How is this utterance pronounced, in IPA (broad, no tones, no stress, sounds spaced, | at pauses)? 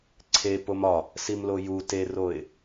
ǀʰ e p o m ɒ | s i m l o j u t e r o ɪ̯